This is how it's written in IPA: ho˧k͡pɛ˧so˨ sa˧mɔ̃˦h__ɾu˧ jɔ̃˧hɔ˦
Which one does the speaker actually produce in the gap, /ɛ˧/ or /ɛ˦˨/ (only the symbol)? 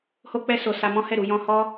ɛ˦˨